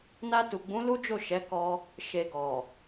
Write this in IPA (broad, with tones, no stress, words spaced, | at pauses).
na˧tu˨ɡ͡bũ˨˦ lu˦d͡ʒo˦˨ʃɛ˨˦ kɔ˧ | ʃe˨ɡɔ˨